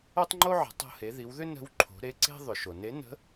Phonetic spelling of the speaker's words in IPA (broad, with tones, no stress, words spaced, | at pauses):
o˥tˤŋ͡ǃo˥ʕə̤˩˧ tˤo̤˧he˩˧ði˩˧wðʏ˥ nə̤˧˥wǃʰo̤˩˧ ɾe˧˥ǀe̤˥ ðˤʏ˩ʃo˩ne˧˥ nə̤˧˥